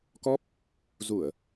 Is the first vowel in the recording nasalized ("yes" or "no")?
no